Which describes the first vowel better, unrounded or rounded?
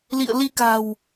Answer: unrounded